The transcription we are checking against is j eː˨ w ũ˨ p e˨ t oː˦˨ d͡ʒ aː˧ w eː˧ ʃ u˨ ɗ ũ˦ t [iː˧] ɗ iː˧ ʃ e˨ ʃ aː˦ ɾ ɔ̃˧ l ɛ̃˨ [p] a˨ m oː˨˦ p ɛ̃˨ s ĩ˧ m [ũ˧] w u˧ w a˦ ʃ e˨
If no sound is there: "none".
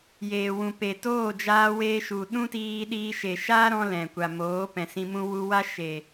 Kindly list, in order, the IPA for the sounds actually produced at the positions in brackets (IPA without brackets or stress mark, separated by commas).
iː˧, kʷ, ũ˧